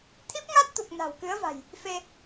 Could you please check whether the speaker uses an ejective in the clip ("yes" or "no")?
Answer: no